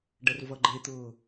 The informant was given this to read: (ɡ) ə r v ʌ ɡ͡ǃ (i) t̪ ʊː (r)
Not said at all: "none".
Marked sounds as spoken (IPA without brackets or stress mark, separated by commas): ɖ, e, none